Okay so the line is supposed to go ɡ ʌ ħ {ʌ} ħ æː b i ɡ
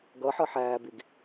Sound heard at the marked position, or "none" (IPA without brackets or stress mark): ʌ